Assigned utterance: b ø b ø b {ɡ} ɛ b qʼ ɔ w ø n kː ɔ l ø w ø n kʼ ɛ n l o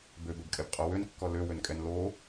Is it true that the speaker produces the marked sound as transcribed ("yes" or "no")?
no